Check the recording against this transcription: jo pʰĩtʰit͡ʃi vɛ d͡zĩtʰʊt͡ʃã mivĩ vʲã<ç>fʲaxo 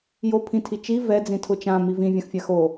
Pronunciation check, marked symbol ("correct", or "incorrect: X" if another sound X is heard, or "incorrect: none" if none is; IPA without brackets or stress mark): incorrect: x